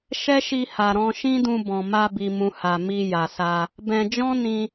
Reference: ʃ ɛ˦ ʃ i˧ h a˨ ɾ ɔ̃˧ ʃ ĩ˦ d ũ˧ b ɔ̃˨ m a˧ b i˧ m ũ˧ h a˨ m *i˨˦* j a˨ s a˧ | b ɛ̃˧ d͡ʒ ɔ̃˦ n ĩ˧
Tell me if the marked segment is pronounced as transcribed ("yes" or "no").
no